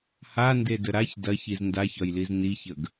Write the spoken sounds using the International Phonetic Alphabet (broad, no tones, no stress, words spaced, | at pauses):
handedə ɾaç dɐçiz ndaçɒjliz niçəɡ